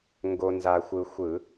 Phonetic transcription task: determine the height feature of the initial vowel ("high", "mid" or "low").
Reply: mid